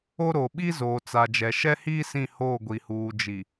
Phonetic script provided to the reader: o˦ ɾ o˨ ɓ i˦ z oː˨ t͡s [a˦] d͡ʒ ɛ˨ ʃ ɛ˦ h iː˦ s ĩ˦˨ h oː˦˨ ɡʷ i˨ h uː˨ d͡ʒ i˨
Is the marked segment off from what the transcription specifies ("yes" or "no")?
yes